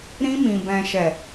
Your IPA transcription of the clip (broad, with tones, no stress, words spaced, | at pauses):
ɾĩ˧mĩ˨bɛ̃˨ʃɛ˨